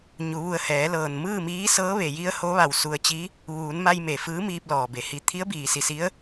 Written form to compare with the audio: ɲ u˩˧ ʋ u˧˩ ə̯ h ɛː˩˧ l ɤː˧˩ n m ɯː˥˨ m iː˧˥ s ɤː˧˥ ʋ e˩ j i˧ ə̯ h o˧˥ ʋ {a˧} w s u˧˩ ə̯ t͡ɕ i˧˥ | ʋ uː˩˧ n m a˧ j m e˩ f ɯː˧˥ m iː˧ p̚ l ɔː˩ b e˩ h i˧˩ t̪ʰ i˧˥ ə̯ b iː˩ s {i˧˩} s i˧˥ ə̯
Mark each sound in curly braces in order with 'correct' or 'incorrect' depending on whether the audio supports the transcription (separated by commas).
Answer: incorrect, correct